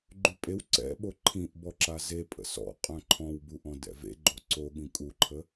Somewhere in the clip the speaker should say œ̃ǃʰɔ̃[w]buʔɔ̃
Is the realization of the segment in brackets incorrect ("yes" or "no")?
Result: no